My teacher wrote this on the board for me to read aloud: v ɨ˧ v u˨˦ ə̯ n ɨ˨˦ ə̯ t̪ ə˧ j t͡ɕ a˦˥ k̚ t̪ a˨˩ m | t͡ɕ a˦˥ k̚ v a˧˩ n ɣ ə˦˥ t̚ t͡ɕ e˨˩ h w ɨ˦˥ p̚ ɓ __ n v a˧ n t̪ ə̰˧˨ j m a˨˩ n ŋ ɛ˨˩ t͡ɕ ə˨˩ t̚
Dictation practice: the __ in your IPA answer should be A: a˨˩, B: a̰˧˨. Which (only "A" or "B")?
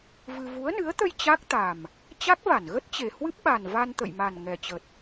A